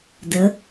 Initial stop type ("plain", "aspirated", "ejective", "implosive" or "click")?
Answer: plain